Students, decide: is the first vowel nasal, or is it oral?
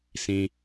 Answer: nasal